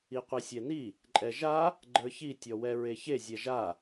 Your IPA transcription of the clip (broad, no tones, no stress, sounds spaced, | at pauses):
i qʷ i sʲ ɛ n i | ǃʼ ɛ ʒ a | ɡ͡ǃ ə˞ ç i tʲ ɔ w ɛ ɹ e ç e zʲ ɛ ʒ a